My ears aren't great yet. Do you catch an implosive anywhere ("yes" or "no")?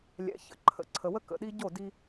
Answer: yes